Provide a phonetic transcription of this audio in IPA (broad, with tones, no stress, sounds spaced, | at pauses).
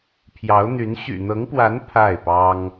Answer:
pʰ j ɑ˧˥ ʊ̯ n̪ y˧˥ n ɕ y̰˨˩ n̪ ɤ˧˥ ŋ p w a˧˥ n pʰ a˥˩ ɪ̯ p ɑ˥ ŋ